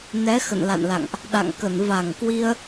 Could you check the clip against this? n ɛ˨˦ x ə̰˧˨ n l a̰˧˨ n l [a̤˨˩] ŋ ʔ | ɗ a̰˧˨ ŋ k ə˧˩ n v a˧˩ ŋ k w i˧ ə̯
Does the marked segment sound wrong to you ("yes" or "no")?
yes